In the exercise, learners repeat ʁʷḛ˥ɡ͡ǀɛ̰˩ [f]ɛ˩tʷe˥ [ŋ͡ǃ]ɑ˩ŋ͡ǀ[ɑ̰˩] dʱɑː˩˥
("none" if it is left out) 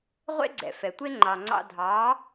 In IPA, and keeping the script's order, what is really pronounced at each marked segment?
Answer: f, ŋ͡ǃ, ɑ̰˧

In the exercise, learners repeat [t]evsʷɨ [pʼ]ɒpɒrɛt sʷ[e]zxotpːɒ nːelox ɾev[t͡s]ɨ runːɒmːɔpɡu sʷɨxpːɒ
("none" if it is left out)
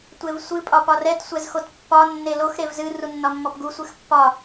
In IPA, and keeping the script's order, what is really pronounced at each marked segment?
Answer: tʷ, pʼ, ɛ, z

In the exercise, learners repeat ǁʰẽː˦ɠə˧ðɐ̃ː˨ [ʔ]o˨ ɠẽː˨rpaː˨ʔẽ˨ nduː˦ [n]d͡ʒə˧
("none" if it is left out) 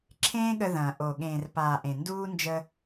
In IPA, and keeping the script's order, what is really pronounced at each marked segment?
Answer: ʔ, n

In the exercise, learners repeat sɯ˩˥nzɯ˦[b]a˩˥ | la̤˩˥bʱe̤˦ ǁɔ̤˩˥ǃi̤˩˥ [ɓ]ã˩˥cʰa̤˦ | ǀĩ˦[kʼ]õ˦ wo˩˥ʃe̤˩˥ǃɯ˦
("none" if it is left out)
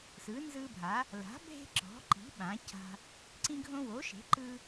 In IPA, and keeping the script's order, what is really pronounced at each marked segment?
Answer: bʱ, ɓ, ɡʱ

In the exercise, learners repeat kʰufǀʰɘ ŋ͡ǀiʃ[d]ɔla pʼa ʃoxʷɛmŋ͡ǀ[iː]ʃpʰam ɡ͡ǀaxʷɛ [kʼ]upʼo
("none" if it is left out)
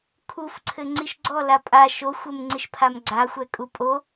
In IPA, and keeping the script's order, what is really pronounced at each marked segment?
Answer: ɡ͡ǀ, i, kʼ

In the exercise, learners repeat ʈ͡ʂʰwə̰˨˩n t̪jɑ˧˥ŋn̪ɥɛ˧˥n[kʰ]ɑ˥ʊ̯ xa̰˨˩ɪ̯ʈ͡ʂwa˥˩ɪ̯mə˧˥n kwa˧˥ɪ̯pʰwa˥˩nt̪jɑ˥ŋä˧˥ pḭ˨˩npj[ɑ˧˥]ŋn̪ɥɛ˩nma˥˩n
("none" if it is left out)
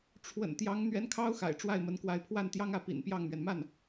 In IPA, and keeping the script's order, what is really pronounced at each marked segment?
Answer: kʰ, ɑ˥˩

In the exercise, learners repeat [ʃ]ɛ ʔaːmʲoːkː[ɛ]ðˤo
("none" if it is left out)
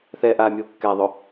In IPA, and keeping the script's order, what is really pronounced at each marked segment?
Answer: θ, ɛ

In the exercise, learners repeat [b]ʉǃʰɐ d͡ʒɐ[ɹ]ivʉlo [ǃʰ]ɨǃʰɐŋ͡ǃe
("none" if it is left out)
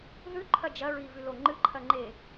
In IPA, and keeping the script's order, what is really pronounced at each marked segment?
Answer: ð, ɹ, ŋ͡ǃ

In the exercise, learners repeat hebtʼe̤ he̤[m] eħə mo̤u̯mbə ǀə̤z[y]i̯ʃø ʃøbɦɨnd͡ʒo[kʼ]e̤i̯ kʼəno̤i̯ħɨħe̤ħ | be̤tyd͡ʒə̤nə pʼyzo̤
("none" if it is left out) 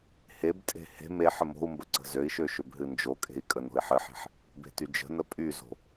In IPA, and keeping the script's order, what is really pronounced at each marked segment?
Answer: m, ø, kʼ

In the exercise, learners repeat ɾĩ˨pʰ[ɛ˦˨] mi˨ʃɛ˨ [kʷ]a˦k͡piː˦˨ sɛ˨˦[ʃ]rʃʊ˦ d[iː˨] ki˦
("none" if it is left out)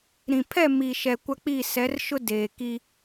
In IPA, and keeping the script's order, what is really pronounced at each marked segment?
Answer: ɛ˦˨, kʷ, none, eː˨

